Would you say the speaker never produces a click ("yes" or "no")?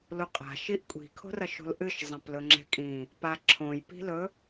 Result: no